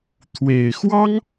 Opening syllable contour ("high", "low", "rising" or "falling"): low